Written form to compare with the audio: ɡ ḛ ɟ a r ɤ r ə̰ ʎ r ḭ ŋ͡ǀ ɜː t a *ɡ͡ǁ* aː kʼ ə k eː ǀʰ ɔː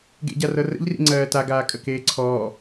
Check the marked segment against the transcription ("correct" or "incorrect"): incorrect